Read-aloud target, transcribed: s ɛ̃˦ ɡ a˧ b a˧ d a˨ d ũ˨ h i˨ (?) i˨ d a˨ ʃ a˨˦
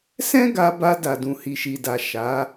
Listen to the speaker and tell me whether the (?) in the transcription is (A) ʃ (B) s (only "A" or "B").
A